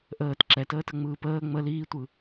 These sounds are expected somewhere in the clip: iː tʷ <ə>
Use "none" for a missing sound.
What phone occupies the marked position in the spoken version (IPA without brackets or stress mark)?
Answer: ɯ